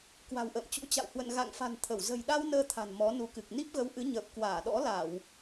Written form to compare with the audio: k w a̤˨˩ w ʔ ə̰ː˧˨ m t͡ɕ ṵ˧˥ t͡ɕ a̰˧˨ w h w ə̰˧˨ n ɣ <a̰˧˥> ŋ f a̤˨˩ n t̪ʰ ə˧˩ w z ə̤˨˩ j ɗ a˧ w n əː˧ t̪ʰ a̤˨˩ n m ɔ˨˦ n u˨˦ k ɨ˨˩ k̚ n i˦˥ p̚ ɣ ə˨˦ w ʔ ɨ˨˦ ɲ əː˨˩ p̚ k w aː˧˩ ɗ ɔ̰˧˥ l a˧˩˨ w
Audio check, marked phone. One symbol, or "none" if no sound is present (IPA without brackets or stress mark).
a̰˧˨